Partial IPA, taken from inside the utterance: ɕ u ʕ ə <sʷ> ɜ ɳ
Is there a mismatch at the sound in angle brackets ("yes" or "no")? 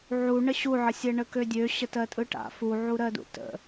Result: yes